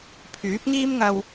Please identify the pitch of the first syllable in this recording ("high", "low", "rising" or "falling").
rising